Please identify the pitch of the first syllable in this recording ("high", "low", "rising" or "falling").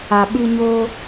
low